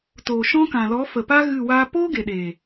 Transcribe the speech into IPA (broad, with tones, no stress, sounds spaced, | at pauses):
t oː˨ ʃ ɔ̃˦ k ã˨ l ɔ˨˦ f ə˨ p a˦ ɣ ɨ˦˨ w aː˦ p oː˦ ɡ e˨ ɗ eː˨